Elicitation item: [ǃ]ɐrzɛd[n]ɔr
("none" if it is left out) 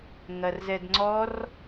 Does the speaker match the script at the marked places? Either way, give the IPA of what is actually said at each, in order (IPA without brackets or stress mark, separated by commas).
ŋ, ŋ͡ǀ